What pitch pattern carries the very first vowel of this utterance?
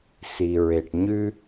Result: low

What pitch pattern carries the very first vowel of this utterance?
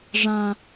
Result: high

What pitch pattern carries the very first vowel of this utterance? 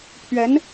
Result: rising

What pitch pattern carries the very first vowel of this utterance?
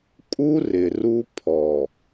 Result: high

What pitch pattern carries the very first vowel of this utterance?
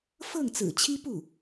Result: falling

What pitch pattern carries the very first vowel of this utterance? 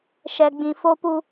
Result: low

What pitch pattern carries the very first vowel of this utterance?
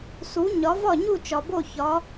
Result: rising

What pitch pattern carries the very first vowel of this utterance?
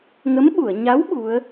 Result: rising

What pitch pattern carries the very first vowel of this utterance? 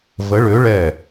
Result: rising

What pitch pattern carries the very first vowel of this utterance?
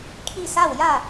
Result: falling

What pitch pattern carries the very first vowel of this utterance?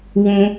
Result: high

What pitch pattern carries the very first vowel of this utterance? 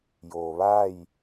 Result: low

